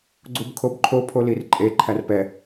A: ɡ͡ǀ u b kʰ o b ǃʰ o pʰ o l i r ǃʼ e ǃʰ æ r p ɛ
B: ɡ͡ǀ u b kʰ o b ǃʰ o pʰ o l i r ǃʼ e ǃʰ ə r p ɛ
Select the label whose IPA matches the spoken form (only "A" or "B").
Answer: A